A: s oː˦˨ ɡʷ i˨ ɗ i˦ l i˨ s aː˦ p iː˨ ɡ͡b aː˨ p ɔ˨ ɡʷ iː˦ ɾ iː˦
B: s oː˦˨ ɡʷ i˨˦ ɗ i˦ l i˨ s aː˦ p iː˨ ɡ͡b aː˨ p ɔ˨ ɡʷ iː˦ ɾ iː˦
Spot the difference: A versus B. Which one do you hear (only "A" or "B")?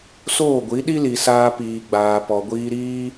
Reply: B